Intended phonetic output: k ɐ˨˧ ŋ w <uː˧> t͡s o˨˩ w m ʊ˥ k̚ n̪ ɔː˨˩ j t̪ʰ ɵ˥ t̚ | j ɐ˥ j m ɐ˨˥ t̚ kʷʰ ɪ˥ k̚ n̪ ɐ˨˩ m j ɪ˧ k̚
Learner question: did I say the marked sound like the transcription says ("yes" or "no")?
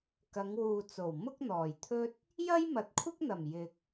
no